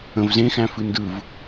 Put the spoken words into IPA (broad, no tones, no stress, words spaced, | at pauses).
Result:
ə̃v zẽxæ̃fɨ ndɯv